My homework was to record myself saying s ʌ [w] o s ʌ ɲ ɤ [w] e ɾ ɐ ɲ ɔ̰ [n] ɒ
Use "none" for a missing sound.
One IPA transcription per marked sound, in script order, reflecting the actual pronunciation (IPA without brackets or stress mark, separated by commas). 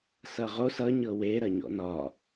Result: ʁ, w, n